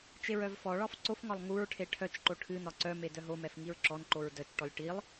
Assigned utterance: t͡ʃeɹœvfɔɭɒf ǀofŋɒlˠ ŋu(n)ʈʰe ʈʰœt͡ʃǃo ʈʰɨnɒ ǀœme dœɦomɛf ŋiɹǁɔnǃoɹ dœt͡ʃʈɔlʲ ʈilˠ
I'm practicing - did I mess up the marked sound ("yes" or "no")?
yes